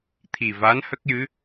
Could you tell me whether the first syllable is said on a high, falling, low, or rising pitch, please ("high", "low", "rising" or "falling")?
low